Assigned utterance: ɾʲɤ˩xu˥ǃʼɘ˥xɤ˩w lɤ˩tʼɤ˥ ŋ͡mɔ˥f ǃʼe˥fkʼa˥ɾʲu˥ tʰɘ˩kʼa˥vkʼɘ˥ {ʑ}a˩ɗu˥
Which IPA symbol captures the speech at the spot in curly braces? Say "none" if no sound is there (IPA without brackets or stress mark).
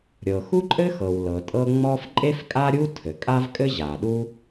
ʑ